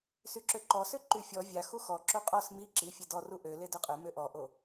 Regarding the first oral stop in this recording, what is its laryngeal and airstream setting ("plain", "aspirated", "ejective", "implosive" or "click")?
click